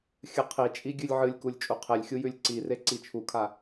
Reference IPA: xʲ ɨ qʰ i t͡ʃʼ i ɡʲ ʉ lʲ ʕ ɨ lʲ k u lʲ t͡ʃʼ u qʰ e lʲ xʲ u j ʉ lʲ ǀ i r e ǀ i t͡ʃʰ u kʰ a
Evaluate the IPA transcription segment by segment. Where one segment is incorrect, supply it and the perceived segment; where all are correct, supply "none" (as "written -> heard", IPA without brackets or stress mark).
none